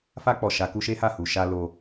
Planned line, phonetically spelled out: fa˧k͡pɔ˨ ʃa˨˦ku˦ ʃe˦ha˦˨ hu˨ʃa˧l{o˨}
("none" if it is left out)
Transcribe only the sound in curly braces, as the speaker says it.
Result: o˧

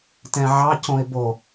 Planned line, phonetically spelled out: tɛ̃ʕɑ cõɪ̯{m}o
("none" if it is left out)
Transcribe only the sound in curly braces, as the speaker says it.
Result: b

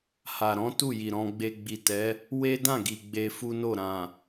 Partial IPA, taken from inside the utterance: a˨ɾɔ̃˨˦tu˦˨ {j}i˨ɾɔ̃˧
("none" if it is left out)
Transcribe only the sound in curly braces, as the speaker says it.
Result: j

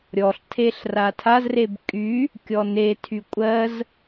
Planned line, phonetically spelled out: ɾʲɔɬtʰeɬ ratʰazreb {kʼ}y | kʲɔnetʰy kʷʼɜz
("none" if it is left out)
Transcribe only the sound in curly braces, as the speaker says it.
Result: kʼ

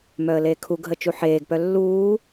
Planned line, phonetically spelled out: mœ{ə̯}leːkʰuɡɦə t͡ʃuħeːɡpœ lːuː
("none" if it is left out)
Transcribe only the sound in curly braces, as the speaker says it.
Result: ə̯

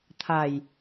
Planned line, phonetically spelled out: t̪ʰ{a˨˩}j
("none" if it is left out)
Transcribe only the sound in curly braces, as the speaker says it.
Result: a˨˩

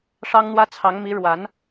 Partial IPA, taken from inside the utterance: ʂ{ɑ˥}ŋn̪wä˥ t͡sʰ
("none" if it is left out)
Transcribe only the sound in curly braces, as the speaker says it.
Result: ɑ˥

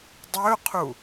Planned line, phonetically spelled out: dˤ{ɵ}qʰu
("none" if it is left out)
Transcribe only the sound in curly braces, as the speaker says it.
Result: ɵ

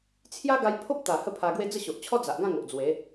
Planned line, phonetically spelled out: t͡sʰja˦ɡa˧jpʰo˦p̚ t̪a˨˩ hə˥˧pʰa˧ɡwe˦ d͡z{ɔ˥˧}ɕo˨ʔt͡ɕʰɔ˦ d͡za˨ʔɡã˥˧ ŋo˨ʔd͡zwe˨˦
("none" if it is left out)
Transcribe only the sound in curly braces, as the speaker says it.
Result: ə˥˧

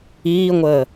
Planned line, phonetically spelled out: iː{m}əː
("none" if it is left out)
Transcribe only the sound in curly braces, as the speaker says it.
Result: ŋʷ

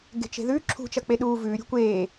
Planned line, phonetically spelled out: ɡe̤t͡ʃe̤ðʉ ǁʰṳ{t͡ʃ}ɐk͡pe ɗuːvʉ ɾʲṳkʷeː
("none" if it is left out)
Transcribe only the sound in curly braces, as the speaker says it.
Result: t͡ʃ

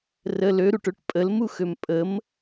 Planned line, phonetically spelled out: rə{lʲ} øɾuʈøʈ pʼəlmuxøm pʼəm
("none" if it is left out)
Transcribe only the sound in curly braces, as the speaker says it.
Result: l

